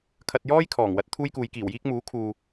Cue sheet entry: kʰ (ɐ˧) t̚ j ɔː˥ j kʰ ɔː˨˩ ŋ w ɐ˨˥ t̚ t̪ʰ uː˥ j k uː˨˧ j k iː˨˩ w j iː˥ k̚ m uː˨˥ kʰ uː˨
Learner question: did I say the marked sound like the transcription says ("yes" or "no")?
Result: yes